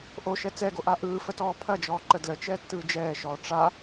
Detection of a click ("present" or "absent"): present